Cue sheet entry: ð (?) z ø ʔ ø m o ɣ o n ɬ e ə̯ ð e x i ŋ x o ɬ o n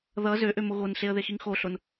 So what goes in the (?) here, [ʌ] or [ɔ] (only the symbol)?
ʌ